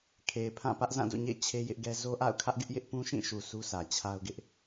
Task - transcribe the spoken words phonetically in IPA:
kʰ e˨ ɪ̯ pʰ ã˦˨ p ä˦ ʔ z ã˦˨ d o̰˦˨ ɲ ḛ˦˨ ɪ̯ t͡ɕʰ e˦ j ɪ˦ ʔ ɡ ɛ˦ z o˦ ʔ a̰˦˨ ʊ̯ kʰ ä˦ ʔ ɡ ɪ˦ ʔ j ɪ˦ ʔ p ũ˦ ʃ ĩ˦˨ ʃ u˨ sʰ u˦ sʰ ä˨ t͡ɕʰ a˦ ʊ̯ ɡ ɪ˦ ʔ

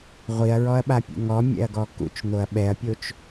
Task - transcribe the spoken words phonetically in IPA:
ʁʷ i ɐ̯ ɹ ɔ ɐ̯ ɓ a pʲ ṵ ŋ ɔ mʲ ɛ̰ ɐ̯ ɡ ɔ k ṵ t͡ʃ n̪ o ɐ̯ ɓ ɛ ɐ̯ pʲ o t͡ʃ

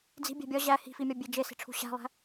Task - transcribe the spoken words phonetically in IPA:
d͡z i̤ bʲ æ̤ bʲ ɒ ʑ æ h i̤ f i mʲ ɒ bʲ e d͡ʒ e s i̤ ʈ͡ʂʰ ṳ ɕ æ̤ lˠ æ̤

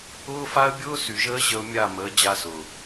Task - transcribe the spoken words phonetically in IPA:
ʊː˦ f a˦ ə̯ bʲ ʊː˦ s y˨ ʒ əː˦ ʑ ə˦ ʊ̯ mʲ a˦˨ m ə˨˦ d͡ʑ a˦ s ʊː˨

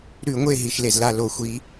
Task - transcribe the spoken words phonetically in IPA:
ɾ ʉ˧˩˧ ŋʷ e˦˨ ɦ i˩ ʃ l e˩ z l a˦˨ l o˧˩˧ xʷ i˨˥

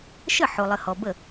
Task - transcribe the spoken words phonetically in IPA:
ʃ ə˥˩ ħ o˨ lˠ ə˨ h ɔ˨ b ə˥˩

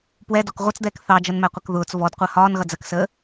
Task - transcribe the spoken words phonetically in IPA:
p w ɛ d ɔ k ʁʷ ʌ t͡s d̪ ɛː k θ ɑ d͡ʒ ʌ n m æ qʷ ʌ k ð ʊː t͡s v ɔ d qʷ ɜ h ɒː n ɣ ʌ d͡z ɜ k s əː

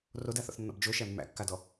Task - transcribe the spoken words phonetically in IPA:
r o d a θ ɔ̰ θ nː ɔ̰ b d͡ʒ o ʃ æ mː æ̰ kː a d ɔ

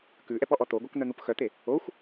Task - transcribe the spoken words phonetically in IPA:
k ʉ ʔ ɛ p ɔ ʔ ɔ t̪ o ɡʷ œ k n̪ œ n̪ u p x œ t̪ e | o xʷ

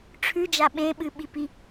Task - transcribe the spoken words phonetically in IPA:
ʈ͡ʂʰ ʉ d͡ʒ a ɓ ẽ ɓ ɨ ɓ i p i

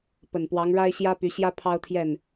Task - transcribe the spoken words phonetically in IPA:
p ə˨˩ n p w ɑ˧˥ ŋ ɻ a˥ ɪ̯ ɕ j ä˥ p y˧˥ ɕ j ä˥ pʰ ɑ˥ ʊ̯ t̪ʰ j ɛ˥˩ n

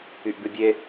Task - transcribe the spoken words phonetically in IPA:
y ʔ b ʉ bʲ e

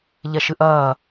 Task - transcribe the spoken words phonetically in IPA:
ʎ ɛ ʃ ɨ ʔ ɐː

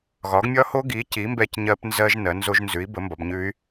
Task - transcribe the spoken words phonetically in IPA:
ɣ ɒ˩˥ ɡ mʲ ɒ˦˥ h o˦˥ ɡ i˩˥ c i˩˥ m b ɛ˦˥ c ɲ ɜ˦˥ p n z ɜ˦˥ ʒ n ɜ˩˥ n z o˦˥ ʒ n z ʉ˩˥ i̯ b ə˩˥ m b ɒ˩˥ b ɲ ʉ˦˥ y̯

